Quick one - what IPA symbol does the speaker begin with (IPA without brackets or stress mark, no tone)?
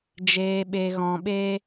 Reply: d͡ʒ